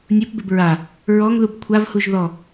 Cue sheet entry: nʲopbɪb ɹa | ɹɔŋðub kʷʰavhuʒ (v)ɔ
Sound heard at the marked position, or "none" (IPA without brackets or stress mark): ð